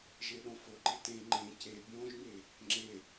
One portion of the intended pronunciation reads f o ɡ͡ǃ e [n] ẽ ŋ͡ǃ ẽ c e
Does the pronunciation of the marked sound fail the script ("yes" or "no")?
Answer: yes